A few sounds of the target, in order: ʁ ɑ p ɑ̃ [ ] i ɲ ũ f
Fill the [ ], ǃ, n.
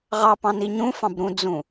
n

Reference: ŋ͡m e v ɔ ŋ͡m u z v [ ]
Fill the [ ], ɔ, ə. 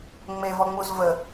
ə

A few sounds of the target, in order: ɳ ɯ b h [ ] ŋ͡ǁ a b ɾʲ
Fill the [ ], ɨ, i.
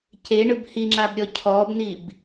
i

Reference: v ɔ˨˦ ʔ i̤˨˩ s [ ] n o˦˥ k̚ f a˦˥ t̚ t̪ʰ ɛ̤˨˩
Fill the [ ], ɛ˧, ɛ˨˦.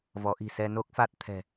ɛ˧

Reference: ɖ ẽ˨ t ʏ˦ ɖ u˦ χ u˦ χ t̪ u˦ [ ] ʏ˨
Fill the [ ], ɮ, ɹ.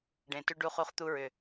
ɹ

